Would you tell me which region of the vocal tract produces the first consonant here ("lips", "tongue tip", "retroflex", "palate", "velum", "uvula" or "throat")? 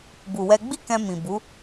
lips